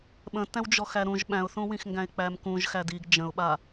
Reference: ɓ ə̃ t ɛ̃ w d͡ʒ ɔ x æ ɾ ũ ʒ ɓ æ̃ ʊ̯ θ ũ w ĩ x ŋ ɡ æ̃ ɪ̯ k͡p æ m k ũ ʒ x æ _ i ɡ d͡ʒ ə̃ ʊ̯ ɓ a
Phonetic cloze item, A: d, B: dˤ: A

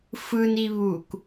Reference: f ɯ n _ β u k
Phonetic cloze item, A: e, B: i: B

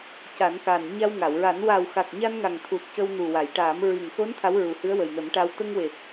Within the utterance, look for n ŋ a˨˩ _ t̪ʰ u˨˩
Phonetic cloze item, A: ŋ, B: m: A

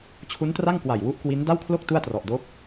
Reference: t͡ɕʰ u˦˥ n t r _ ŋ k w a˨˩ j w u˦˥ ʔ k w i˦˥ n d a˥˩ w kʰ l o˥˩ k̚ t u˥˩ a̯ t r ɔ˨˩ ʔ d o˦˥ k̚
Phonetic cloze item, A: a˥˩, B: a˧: A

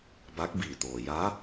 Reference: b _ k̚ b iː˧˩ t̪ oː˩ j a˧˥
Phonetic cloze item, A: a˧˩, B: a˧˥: B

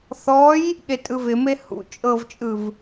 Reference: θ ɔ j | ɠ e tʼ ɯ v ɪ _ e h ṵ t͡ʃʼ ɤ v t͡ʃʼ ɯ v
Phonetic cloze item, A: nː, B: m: B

